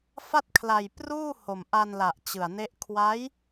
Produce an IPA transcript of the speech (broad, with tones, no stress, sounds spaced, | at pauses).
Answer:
f a˥˩ t̚ kʰ l a˧ j p r uː˥˩ h o˨˩ m ʔ a˧ n l a˨˩ ʔ t͡ɕ ɯ˨˩ a̯ n e˦˥ ʔ kʰ w a˦˥ j